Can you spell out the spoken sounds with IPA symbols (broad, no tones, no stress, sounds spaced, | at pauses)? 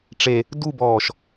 ʈ͡ʂ e | d u b ɔː ʃ